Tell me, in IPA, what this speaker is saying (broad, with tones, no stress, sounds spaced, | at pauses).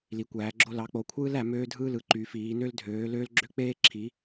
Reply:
l i˨˦ kʷ æː˨˦ ɡ͡ǁ o˥ l ɑ˨˦ k͡p o˨˦ kʷʰ ɯː˥ l æ˨˦ m øː˥ dʱ ɯː˥ l ɯ˨˦ ǃ y˨˦ f iː˨˦ n ø˥ l dʱ øː˨˦ l øː˥ l ɡ͡ǁ ø˥ k͡p eː˥ ǁʰ i˨˦